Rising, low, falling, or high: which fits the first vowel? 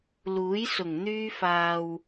rising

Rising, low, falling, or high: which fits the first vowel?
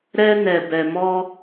high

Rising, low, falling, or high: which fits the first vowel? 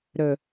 low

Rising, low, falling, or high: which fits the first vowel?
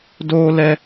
high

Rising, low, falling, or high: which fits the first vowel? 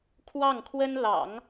falling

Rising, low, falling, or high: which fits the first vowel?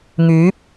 rising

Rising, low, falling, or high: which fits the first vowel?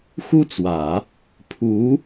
high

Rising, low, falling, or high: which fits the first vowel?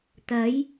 rising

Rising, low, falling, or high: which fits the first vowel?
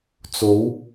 rising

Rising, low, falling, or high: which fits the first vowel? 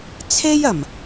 high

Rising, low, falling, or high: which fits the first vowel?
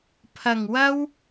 low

